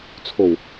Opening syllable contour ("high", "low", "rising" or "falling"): low